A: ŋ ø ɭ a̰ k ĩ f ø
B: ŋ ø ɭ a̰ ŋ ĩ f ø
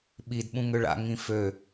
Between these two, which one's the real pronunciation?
B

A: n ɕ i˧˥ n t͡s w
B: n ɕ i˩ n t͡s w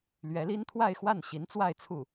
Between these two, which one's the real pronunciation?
A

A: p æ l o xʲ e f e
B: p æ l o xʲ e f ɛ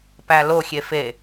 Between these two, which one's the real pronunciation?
A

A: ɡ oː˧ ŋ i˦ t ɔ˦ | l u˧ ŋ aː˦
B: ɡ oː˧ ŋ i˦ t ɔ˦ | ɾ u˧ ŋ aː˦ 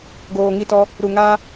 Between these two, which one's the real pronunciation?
B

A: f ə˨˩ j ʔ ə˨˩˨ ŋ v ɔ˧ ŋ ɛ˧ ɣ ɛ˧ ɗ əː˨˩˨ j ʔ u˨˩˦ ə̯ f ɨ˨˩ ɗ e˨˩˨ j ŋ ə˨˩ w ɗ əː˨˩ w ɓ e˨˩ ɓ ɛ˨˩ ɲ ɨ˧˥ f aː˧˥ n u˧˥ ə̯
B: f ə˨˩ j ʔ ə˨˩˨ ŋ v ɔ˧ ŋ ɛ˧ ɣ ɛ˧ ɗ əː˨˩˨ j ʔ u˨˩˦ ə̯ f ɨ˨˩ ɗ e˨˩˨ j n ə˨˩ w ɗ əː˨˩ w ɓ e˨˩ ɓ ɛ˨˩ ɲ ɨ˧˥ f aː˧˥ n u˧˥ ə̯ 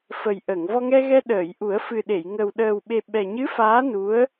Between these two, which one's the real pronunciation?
A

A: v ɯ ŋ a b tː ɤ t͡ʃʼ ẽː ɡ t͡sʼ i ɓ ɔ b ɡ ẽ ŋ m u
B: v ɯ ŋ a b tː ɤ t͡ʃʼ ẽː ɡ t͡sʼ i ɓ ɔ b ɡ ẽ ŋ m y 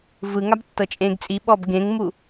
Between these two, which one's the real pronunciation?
A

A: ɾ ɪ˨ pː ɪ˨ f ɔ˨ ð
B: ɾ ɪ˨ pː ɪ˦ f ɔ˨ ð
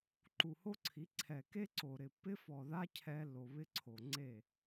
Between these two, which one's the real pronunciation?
B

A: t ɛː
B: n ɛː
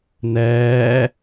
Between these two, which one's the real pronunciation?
B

